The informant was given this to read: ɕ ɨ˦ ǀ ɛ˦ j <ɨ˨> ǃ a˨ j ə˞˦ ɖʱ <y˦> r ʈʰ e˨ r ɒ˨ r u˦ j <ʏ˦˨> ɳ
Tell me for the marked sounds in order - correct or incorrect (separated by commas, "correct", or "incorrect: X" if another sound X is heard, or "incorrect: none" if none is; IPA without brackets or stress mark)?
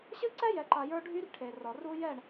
incorrect: ɛ˨, correct, incorrect: ɛ˦˨